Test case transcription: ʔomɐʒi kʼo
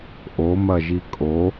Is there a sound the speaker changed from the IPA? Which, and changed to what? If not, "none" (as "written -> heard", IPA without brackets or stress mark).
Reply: none